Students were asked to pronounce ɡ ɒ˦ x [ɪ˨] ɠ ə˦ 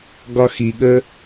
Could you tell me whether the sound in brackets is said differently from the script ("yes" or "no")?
yes